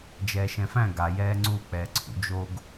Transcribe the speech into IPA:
d͡ʒ ɛː ʃ ɛ̃ f æ̃ ɡ a j ɛː ŋ͡ǀ u k͡p ɛː ǀʰ ṵ d͡ʒ o ɡ

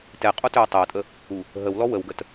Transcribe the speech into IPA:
t ɛ qʼ o t ø o̯ tˤ e o̯ tʼ ə | u | ɦ ə w l ɔ w ə w ɡ ə t

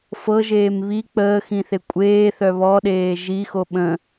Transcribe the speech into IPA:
f ɤ ʒ eː m β i k͡p əː x ĩ θ e kʷʼ eː θ œ β ɔ ɗ eː ʒ i x o ɓ ə̃

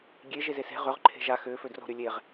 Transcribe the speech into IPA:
ɡʲ e ʒ e z e s e̤ ʁ ʏ ʁ ǃʰ e̤ ʒ a x ʏː f ø d r o̤ ɾ y lʲ e ʁ

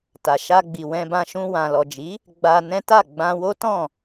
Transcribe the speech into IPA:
t a˨ ʃ a˧ ɡ͡b i˨ w ɛ̃˧ b ã˧ ʃ ũ˧ w ã˨ l ɔ˨ d͡ʒ i˨˦ | ɡ͡b a˧ n ɛ̃˦ t a˦˨ ɡ͡b ã˧ w o˦ t ɔ̃˦˨

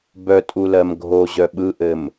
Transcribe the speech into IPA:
b œ tʼ u l ɜ m ɡʱ o ʑ œ ɓ ɯ ʔ ɘ m

